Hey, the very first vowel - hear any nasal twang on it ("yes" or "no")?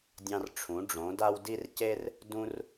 yes